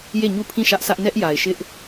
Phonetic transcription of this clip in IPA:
j e˦˨ ɲ u˦˨ pʰ ĩ˦˨ ʃ ä˦ ʔ s ä˦ ʔ n ɛ˦ ʔ j a˨ ɪ̯ ʃ ɪ˦ ʔ

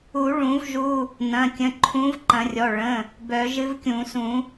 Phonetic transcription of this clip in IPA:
u˨˩˦ ɭ ũ˨˩˦ v ʒ u˩˧˩ | n ɐ̃˩˧˩ kʲ ə̃˩˧˩ ǃʰ ũ˨˥ v ǃ ɐ̃˨˩˦ rʲ ɔ˩˧˩ ɭ ə̃˩˧˩ | b œ˨˩˦ ʒ ɨ˨˥ v kʲ ũ˨˩˦ s ũ˨˩˦

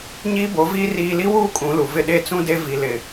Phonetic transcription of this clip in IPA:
ɲ iː˦ b o˨˦ v iː˦ r iː˨ l i˦ w uː˦ kʼ ũ˨˦ l u˨ v ɪ˦˨ ɗ e˦˨ t͡s ũ˦ d e˦ v i˨ l ɪ˨

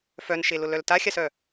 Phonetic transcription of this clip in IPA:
f œ n ʃ e l ʊ l œ l t a xʲ a s œ

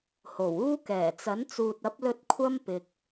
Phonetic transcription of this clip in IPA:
h o˨˩ w uː˥ k ɛː˨˩ t͡s ɐ˨˥ n t͡s uː˨ t̚ ɐ˨˥ p̚ l ɵ˧ t̚ kʷʰ ɐ˥ m p ɪ˨ k̚

